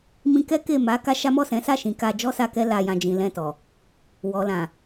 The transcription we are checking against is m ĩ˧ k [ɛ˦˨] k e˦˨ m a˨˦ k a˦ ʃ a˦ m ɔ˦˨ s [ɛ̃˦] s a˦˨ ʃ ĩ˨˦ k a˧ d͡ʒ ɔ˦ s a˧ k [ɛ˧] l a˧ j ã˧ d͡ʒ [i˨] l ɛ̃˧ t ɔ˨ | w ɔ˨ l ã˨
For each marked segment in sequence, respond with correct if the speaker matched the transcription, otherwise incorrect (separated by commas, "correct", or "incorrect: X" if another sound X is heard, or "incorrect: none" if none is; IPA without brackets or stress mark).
incorrect: ɛ˦, incorrect: ɛ̃˨˦, incorrect: ɛ˦, incorrect: ĩ˨